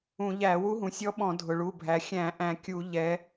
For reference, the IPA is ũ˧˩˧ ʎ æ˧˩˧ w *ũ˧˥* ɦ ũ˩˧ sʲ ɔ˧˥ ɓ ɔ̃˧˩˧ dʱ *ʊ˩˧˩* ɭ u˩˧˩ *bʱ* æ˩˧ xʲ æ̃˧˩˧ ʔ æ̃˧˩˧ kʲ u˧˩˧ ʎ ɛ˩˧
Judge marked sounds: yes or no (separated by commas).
no, no, yes